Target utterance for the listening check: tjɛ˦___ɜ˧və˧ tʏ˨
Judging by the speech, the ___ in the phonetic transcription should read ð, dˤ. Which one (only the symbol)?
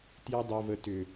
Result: dˤ